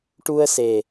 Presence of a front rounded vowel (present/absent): absent